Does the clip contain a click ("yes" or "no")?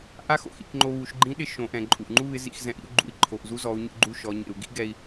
yes